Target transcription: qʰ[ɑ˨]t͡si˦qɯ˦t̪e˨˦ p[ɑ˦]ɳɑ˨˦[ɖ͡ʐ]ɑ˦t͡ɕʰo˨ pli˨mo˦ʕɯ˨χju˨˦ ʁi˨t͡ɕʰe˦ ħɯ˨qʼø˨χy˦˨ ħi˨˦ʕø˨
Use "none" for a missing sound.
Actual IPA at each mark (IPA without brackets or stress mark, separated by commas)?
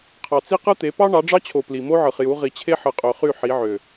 ɑ˨, ɑ˦, ɖ͡ʐ